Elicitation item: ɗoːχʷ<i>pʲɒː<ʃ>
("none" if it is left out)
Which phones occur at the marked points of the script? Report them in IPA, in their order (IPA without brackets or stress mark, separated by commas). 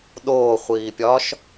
iː, ʃ